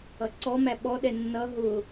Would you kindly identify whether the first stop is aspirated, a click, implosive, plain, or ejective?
click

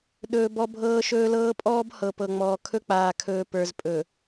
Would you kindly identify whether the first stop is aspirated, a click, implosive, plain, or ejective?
implosive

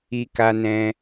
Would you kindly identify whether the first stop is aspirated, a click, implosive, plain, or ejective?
plain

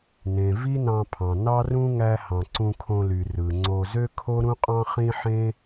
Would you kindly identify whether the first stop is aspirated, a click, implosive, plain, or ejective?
aspirated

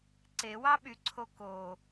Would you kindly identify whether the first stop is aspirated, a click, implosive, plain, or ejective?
click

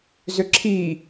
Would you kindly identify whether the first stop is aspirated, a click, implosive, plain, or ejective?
click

